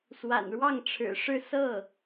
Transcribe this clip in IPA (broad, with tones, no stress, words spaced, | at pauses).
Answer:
swa̰˨˩nɻwɑ˥˩ŋʈ͡ʂʰɻ̩˨˩ʂɻ̩˥˧ sɤ˥˩